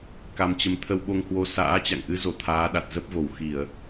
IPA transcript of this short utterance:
k a˧ m t͡ɕ ə˧ m t̪ʰ ə˧ w ɓ o˧ ŋ h w o˧ s a̰ː˧˥ t͡ɕ a̰˧˨ ŋ ʔ ɨ˨˦ z o˧˩ t̪ʰ aː˨˦ ɗ a˨˩ t̚ z ə˦˥ p̚ v o˧˩ w x i˧˩˨ ə̯

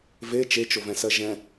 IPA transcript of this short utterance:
v e t͡ʃ e t͡ʃ o v ɛ̃ s ɜ ʒ ɛ̃

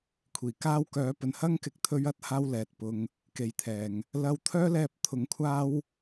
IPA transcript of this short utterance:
kʷʰ iː˨˩ k aː˥ w k œː˨˥ p ɵ˨ n h ɐ˥ ŋ k ɪ˨˥ k̚ t̪ʰ ɵ˧ ɥ ɐ˧ t̚ h aː˧ w l ɛː˨ t̚ p ʊ˧ ŋ | k e˨ j t̪ʰ ɛː˨ ŋ | l ɐ˧ w t̪ʰ œː˥ l ɛː˧ p̚ t̪ʰ ʊ˨˥ ŋ kʷʰ aː˥ w

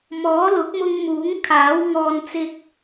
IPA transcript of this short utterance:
m ɔː˨˥ l ʊ˨˥ k̚ m ʊ˧ ŋ m uː˨˥ ŋ kʰ aː˨˥ w ŋ ɔː˧ n t͡s ɪ˧ k̚

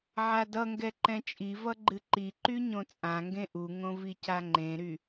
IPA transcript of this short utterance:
ʕ a d ʌ ŋ ɡ ɛ ǃ ɛ̃ t͡ʃʼ i v ʌ ɡ͡ǃ ɨ ǃ i ǃ y ɲ õ t͡sʼ ã ŋ ɡ ẽ ʔ u ŋ õ v i c a ŋ͡ǃ ẽ ɾ y

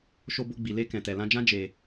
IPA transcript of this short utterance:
ʃ o˧ b o˧ ɡ͡b i˨ l e˧ k ɛ̃˨ t ɛ˨ l ã˧ d͡ʒ ã˦ d͡ʒ e˧

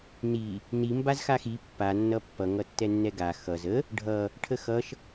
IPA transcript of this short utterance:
n i | n i m b a z x a x i pː a nː ʌ pː ʌ ŋ ʌ tː ɛ nː ɛ ɡ a x ʌ z ə | ɖʱ ʌ | ʈʰ ə x ʌ ʃ

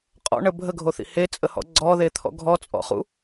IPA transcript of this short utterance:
qʼ ɔ̰ ɳ ə bʱ ə ɡʱ o θ ḭ h e t͡sʼ ə h ɔ̰ ɡ͡ǀ ɔ ð e t̪ʰ ɔ̰ ɡʱ ɔ t͡sʼ ɔ̰ χ ṵ

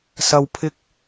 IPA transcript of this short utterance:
s ɐ˧ w pʰ ɪ˥ k̚

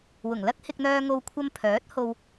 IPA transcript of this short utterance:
w ʊ˨˩ ŋ l ɐ˥ k̚ h ɪ˧ k̚ n̪ œː˧ ŋ o˧ w kʷʰ ɐ˧ m pʰ œː˨˥ t̚ h o˨ w

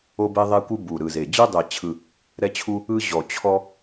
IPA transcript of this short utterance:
o˦ b e˦ ðˤ e˦ kʷ ɯ˦ b u˨˩ ɾ ɯ˨˩ z e˨˩ d͡ʑ ɯ˦ dˤ ɛ˨˩ t͡ɕʰ ɯ˨˩ | ɾ ɛ˦ t͡ɕʰ u˦ | ɯ˦ ʑ ɔ˨˩ t͡ɕʰ ɔ˦

